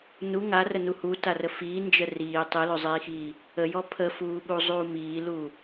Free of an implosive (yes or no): no